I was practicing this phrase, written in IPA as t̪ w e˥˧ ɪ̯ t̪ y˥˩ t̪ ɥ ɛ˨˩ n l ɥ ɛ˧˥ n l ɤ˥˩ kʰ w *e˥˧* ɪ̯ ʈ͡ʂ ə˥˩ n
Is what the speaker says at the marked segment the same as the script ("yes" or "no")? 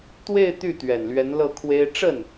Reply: no